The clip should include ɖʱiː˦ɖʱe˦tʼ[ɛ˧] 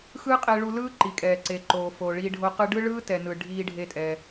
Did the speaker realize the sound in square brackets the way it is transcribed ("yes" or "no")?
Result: yes